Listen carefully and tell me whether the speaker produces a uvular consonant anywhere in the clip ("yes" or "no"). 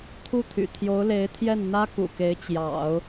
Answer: no